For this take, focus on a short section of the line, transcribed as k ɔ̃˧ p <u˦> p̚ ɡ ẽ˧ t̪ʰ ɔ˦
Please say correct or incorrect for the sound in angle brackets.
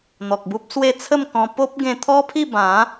incorrect